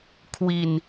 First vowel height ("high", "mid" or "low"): high